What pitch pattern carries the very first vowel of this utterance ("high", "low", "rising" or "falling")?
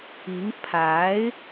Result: rising